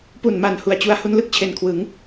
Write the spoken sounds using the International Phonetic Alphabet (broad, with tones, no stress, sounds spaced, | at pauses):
p u˨˩ n m a˨˩ n h u˨˩ a̯ t͡ɕ u˧ a̯ h u˧ n l ɯ˥˩ k̚ t͡ɕʰ e˨˩ n kʰ w ɯ˩˦ ŋ